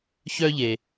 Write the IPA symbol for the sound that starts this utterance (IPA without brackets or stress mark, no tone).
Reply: ç